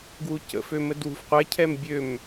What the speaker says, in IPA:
ɡ w u c ə̰ f ø m ə d w ṳ f qʷ ɛ cʰ ɛ m bʲ ø m

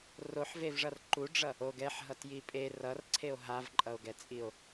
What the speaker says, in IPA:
r o ħ v e v ʐ ʌ r ǃ u ɖ͡ʐ ʌ | o ɡ ɛ ħ ɦ ʌ t j i pʼ e r ʌ r ǀʰ e o̯ ɦ a v ǃʼ ʌ o̯ ɡ ɛ t͡sʼ i o̯

